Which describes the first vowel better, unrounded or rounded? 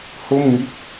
rounded